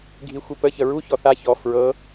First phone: ɡʱ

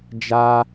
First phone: d͡ʒ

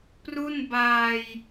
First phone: p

